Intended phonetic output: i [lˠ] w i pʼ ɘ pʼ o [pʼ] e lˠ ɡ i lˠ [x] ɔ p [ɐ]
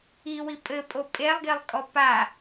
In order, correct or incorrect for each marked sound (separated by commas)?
incorrect, correct, incorrect, incorrect